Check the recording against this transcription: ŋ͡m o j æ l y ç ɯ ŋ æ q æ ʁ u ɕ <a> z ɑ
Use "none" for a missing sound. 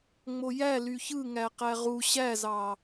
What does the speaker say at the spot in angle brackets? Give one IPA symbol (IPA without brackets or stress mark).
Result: æ